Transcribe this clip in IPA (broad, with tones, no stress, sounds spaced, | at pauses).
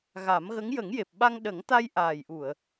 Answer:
ɣ a˨˩˦ m ɣ ə˧˥ ŋ j ə˨˩˦ ŋ j e˨˩ p̚ ɓ a˧ ŋ ɗ ə˨˩˦ ŋ t̪ a˧ j ʔ aː˨˩ j ʔ u˨˩˨ ə̯